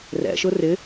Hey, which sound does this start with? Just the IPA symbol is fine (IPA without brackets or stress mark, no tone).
r